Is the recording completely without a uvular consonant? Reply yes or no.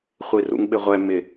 no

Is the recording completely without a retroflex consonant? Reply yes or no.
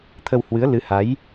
yes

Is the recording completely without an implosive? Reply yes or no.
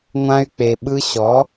no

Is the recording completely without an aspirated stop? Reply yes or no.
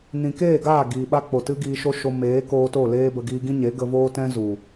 yes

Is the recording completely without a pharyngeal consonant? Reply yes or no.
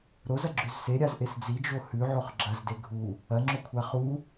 no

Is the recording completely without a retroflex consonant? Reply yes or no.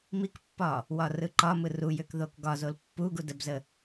yes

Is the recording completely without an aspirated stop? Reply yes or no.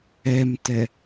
yes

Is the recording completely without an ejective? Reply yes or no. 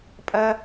no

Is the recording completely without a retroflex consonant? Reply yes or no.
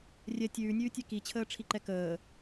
no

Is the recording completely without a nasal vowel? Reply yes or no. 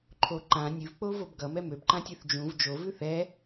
no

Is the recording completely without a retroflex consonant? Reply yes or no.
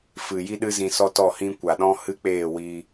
yes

